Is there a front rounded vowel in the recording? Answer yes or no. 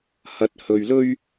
no